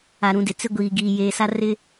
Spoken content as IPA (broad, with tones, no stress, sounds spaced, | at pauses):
a˨ ɾ ũ˨ d ɪ˨ t͡s ɪ˦ ɡʷ iː˨ ɡ iː˨ j eː˨ s a˦ r ɪ˦